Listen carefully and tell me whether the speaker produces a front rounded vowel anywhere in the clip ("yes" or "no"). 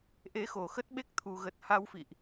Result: no